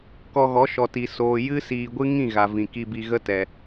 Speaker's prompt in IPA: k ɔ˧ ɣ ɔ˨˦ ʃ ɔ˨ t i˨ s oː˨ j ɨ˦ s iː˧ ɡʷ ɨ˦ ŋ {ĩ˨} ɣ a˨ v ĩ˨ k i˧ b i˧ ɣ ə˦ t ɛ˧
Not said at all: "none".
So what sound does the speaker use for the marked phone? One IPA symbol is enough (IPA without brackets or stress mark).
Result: ĩ˦˨